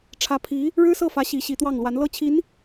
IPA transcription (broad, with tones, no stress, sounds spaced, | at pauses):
ʈ͡ʂʰ ä˧˥ pʰ i˧˥ | ɻ ɻ̩˥ s ɤ˥˩ f ä˧˥ ɕ i˧˥ ɕ i˧˥ t̪ w ɑ˥˩ ŋ l w a˧˥ n l ɤ˥˩ t͡ɕʰ i˧˥ n